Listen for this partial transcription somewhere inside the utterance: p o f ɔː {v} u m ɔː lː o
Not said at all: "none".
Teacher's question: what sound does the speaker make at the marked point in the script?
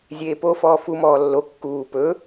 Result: f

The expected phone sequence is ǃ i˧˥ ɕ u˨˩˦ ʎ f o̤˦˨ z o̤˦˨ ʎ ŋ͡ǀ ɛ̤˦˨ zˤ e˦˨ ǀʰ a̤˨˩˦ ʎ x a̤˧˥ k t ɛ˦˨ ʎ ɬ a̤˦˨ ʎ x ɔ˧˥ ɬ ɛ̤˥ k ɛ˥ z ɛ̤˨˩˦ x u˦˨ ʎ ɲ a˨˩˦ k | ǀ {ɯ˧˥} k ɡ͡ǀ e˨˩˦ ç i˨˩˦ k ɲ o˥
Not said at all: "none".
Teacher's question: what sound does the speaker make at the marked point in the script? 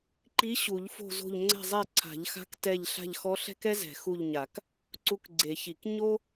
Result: u˧˥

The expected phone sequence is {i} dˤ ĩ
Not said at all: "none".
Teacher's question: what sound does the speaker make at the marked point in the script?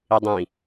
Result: i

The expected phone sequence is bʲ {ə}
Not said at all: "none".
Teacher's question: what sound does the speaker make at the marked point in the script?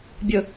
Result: ə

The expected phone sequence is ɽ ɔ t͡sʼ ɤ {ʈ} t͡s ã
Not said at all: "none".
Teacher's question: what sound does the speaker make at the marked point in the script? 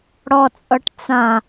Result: ʈ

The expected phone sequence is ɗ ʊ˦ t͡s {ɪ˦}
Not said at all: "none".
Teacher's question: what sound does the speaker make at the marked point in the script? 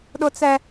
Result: ɛ˦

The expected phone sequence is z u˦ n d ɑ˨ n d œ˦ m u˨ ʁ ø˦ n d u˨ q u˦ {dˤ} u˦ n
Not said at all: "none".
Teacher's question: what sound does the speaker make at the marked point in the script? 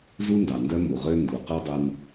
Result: dˤ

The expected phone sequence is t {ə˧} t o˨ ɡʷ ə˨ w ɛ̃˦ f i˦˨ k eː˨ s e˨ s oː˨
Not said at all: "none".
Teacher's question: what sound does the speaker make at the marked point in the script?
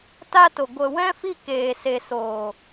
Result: a˧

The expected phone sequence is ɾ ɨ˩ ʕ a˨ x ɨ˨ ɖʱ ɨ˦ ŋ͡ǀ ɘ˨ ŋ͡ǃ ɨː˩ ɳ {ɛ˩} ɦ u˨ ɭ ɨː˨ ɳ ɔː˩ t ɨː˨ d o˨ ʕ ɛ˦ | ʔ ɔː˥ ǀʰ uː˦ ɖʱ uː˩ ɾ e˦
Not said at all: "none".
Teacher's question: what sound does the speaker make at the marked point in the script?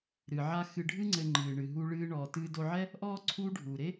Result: ɨ˩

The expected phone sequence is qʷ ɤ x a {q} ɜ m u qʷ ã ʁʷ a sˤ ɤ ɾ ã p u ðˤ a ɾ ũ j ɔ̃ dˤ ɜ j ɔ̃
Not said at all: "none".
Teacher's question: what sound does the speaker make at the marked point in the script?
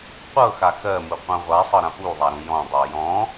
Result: x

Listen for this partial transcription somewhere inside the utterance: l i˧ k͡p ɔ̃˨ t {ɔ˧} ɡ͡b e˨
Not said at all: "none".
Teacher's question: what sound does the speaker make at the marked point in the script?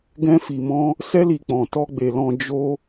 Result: ɔ˧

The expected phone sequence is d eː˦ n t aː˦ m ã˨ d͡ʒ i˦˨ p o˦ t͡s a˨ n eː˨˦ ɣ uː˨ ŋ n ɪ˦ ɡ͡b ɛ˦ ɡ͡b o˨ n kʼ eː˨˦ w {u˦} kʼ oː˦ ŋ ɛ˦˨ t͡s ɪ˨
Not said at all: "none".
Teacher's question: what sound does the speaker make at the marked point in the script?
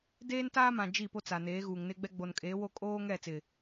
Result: o˦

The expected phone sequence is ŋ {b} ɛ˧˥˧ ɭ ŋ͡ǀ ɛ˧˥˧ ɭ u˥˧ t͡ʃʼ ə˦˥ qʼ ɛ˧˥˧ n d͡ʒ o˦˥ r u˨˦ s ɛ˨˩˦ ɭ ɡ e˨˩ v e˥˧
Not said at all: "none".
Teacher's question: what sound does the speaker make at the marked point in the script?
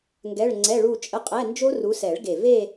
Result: ɡ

